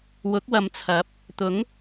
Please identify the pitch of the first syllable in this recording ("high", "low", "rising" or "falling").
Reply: rising